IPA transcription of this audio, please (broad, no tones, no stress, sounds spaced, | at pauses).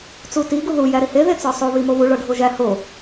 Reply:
t͡s u t i ɡ u ð u j æ ɾ i h e ð e t͡s ɒ sˤ o β i m o β u ɭ ɒ ɖʱ o ʒ æ h o